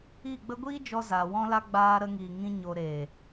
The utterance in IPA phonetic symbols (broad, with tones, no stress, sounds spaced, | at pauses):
i˦˨ ɡ͡b ə˦ ɡʷ iː˦ d͡ʒ ɔ˧ z aː˨ w ɔ̃˦ l a˦ ɡ͡b aː˧ ɾ ə˧ ŋ iː˨ ŋ ĩ˦ ɲ o˧ ɾ eː˨